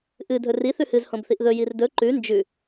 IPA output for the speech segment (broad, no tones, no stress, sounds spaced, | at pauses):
ʔ ɨ dʱ ɵ r i θ ʉ h ɨ z h õ b θ i ʔ ð ɵ j i r d ɵ ǃ ʉ n d͡ʒ ʉ